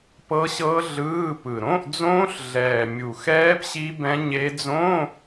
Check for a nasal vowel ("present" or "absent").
present